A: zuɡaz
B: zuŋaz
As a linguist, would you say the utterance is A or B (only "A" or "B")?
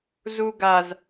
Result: A